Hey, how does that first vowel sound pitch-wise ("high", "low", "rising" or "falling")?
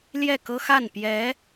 falling